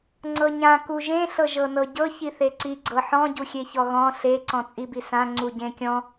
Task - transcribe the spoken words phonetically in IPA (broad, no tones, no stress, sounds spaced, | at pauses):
ŋ͡ǀ ɤ ɲ ã k u ʒ ẽ ɬ ɤ ʒ ɤ n ɤ ɟ ɤ ç i θ e ǀ i ɡ͡ǀ ɤ ħ ɔ̃ ɟ u xʲ e ç ɔ ɣ ɔ̃ ɬ e ǀ ɔ̃ t͡sʼ i b i s ã ŋ͡ǀ u ɟ ẽ kʲ ɔ̃